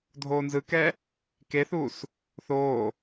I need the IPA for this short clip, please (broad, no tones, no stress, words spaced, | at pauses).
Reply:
dʱoːnzɯkɛ | keθuːs | θoː